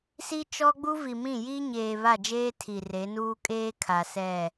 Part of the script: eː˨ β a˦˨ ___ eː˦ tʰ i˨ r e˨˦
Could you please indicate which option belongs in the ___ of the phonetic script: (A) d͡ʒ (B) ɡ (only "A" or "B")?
A